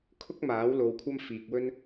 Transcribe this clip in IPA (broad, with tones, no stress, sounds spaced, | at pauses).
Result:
kʰ ʊ˥ k̚ m aː˨˥ w l o˧ w kʷʰ ɐ˥ m f iː˧ k̚ w ɵ˥ n